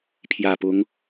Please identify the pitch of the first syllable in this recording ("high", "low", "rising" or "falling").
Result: low